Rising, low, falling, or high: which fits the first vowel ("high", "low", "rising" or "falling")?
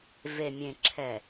low